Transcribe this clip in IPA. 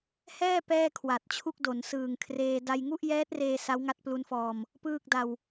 hɛː˥˩ pɛː˥˩kʰwa˨˩t̚t͡ɕʰu˥˩k̚do˩˦n sɯː˨˩ŋkʰreː˧ da˧jŋu˥˩ʔjɛː˦˥t̚reː˧ sa˦˥wŋa˦˥t̚plu˦˥nfɔː˧m | pɯː˥˩k̚da˧w

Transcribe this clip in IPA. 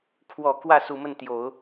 kʰwɔ˨˩ kwä˥˩su˨˩mə˥˩nt̪jo˨˩˦ʊ̯

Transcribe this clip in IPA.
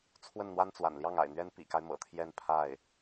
t͡sʰwə˥˩nn̪wa˥nt͡swa̰˨˩n ljɑ˥˩ŋa̰˨˩ɪ̯n̪ɥɛ˥n pḭ˨˩ka˦ɪ̯ mɤ̰˨˩t̪ʰjɛ˥˧n pʰa˥˩ɪ̯

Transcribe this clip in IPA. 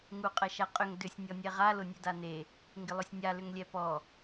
ŋuqʼɐʃaqʼʏŋ dʏsʲ nʲɔnʲɛʁa lʊnʲødane | ŋɡɪlˠøsʲnʲa lʏŋlʲɛpɔ

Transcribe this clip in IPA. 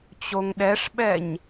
t͡ɕoŋɗɛʂɓɛɲ

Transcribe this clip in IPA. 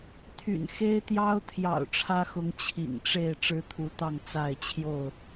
t̪ʰy̰˨˩nxe˦ɪ̯t̪jɑ˦ʊ̯ t̪ʰjɑ̰˨˩ʊ̯ʈ͡ʂʰä˦xʊ˨˦ŋ t͡ɕʰḭ˨˩ŋʈ͡ʂe˥˨ɪ̯ ʈ͡ʂɻ̩˦t̪ʰu˨˦t̪ɑ˥˨ŋ t͡sa˥˨ɪ̯ t͡ɕʰjo˥˨ʊ̯

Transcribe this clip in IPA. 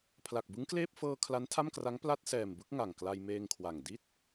pʰla˨˩k̚bɯ˦˥ŋkleː˥˩p̚ fɤː˧ kʰla˦˥ntʰa˥˩mkra˦˥ŋ pla˥˩t̚sɛː˨˩mbɯ˦˥k̚ ŋa˨˩ŋkla˧jmeː˧ŋkʰwa˨˩ŋ di˥˩t̚

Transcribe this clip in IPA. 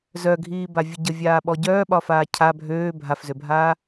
zœɡʱiːbavʲə ɟəvʲaːɓɔ ɟœːɓɒfaː cʰa bʱøː bʱafzøbʱaː

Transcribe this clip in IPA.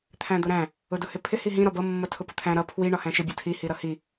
t̪ʰæ̃d̪ʊɾæ̃ | ʊdʊhɪpʰɪ hiɦĩ ɾɒbʌ mːʌtʰʊpʊt̪ʰæ̃ ɾʌ pʰwi ɳɒhæ̃ʃɪ bʲʌtʰi hiɾʌhi

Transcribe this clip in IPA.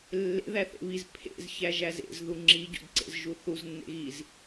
lːḛ ðæθḛβiz pʰḛz çæʒæzḛz ðuŋ͡ǁi ɟo̰dǀḛzʒuθuz nːḛɣiz

